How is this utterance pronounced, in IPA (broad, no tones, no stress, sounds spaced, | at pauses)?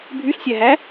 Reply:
bʱ y ɬ sʲ æ ɦ æ